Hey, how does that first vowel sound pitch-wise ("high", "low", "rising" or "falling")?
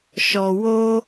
low